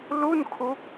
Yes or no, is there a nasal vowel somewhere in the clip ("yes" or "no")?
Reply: no